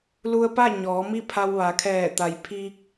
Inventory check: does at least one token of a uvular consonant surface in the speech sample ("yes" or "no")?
no